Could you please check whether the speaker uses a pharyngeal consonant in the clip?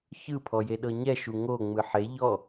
yes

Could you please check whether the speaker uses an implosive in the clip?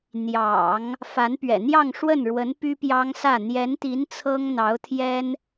no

